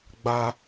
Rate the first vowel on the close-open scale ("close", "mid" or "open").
open